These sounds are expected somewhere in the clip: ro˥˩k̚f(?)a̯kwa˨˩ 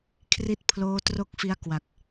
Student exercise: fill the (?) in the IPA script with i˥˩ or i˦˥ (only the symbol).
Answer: i˦˥